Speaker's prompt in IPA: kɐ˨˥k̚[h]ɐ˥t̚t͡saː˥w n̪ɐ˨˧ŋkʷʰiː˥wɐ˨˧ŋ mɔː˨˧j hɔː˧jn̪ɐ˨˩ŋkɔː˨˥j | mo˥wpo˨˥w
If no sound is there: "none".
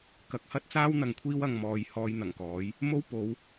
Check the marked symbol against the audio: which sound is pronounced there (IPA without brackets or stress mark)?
h